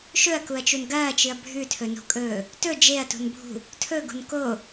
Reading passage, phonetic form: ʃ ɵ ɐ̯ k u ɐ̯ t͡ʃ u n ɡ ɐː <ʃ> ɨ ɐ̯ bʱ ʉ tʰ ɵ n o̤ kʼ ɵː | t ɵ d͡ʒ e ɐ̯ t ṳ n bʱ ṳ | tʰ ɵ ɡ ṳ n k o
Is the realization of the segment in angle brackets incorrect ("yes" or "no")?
yes